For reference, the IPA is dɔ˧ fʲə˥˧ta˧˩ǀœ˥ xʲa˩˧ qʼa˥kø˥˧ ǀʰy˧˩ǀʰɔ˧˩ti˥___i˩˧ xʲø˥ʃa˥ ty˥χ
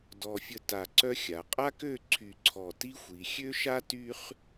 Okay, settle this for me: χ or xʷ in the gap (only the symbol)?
xʷ